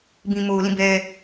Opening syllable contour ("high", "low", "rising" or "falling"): low